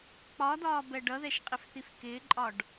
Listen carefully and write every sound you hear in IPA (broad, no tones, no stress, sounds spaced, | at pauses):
k͡p ɒ d ɒː b ɛ ɖ ʌ ð ɛ ʃ qʼ ɪ f θ i f k ɪː ǃʼ ɒ ɖ